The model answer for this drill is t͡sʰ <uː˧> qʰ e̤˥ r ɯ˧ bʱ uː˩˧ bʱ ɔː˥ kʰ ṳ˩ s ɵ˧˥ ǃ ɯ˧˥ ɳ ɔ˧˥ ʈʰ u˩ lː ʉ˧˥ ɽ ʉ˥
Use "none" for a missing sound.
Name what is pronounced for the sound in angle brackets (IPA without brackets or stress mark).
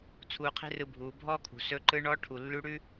uː˧